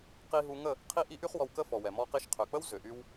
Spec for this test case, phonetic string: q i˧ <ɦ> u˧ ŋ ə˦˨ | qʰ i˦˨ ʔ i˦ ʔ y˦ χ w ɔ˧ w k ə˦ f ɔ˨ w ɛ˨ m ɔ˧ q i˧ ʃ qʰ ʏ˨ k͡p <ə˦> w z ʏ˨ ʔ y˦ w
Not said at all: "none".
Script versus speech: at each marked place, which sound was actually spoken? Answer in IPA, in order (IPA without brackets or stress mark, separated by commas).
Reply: ɦ, ə˦